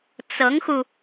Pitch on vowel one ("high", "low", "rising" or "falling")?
rising